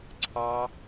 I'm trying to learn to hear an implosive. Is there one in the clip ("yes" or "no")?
no